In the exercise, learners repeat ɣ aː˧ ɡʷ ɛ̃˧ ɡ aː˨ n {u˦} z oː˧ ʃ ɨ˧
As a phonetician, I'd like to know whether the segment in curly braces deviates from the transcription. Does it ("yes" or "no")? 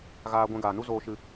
no